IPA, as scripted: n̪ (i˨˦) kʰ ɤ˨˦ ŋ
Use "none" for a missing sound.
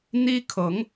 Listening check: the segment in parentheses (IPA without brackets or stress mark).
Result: i˦